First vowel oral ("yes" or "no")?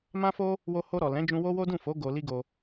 no